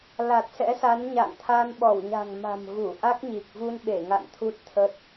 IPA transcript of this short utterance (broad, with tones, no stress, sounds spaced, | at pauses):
l a˨˩ t̚ s ɛ̰˧˥ s a˨˦ n ɲ a̰˧˨ ŋ t̪ʰ a˧ n ɓ ɔ˧˩ w ɲ a̤˨˩ ŋ m a̤˨˩ m ɣ u˧˩ ʔ a˦˥ k̚ ɲ i˨˩ k̚ v u˧ n ɓ e˧˩ ŋ a̰˧˨ n t̪ʰ u˦˥ t̚ t̪ʰ ə˦˥ t̚